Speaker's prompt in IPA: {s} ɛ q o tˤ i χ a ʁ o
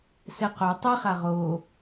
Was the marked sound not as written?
no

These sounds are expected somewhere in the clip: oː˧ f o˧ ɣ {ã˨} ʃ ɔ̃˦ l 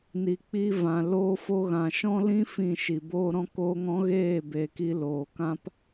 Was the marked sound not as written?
no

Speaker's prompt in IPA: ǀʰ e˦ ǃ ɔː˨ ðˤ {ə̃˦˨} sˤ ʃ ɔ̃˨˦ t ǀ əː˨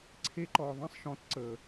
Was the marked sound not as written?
no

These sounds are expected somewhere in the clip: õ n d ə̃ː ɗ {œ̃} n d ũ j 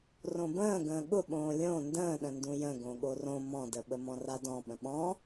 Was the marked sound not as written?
yes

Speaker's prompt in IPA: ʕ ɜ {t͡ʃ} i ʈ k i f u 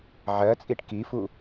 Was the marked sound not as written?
yes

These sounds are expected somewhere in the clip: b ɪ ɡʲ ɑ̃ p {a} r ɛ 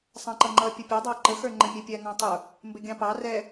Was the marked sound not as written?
yes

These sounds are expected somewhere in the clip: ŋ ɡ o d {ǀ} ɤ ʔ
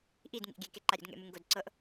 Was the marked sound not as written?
no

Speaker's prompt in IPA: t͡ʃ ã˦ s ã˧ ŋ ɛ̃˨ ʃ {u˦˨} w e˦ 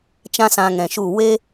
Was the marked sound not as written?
no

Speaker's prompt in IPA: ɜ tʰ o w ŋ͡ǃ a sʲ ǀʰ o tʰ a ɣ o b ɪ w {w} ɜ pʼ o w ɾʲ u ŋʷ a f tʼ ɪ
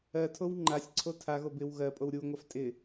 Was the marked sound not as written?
yes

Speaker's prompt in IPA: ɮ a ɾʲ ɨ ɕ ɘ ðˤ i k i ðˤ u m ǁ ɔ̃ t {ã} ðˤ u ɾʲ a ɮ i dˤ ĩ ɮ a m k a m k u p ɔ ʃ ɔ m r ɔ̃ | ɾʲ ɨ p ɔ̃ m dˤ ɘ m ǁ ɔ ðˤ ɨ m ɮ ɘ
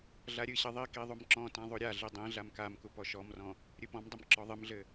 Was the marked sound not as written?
no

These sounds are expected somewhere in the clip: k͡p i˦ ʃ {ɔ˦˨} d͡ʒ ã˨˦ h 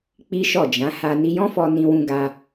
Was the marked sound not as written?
no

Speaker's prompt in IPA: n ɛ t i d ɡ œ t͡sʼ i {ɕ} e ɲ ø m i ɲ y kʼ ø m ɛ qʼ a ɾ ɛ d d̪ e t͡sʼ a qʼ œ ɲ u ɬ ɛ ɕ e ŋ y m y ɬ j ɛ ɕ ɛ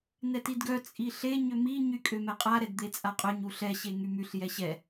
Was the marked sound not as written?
yes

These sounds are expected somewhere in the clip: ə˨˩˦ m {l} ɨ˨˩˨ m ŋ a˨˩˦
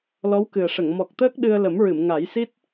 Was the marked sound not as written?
yes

